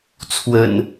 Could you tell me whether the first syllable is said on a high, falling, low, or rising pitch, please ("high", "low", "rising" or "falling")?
low